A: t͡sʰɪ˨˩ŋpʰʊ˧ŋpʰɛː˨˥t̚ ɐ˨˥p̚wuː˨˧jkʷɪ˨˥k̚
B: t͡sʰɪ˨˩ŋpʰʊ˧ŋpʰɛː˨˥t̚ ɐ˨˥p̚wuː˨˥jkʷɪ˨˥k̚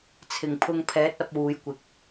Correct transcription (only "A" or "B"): A